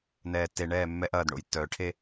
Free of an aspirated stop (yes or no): no